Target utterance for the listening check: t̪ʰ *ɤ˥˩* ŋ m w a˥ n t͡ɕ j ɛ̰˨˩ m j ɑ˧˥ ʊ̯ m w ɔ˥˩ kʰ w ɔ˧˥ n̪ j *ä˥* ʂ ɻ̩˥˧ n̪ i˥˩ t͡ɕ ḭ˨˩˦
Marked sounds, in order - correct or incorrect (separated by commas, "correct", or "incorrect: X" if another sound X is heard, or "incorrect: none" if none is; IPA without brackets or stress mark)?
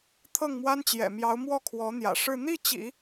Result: correct, incorrect: ä̰˨˩